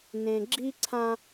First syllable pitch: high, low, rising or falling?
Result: low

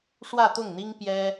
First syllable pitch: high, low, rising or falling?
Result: falling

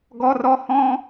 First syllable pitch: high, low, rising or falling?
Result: high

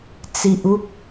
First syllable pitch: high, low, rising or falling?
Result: low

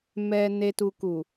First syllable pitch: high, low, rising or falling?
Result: low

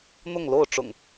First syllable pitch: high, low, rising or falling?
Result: falling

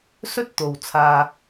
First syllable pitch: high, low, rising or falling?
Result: high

